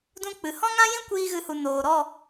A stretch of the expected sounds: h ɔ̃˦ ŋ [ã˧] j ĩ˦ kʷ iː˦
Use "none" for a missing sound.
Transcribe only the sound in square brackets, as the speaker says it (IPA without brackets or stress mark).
ã˦